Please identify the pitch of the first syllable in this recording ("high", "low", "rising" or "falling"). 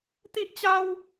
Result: high